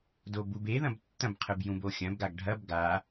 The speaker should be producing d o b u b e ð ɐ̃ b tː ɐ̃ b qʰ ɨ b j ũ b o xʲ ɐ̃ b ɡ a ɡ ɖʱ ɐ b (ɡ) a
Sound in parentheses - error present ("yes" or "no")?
no